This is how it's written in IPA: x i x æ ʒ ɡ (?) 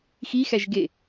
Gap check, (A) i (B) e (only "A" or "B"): B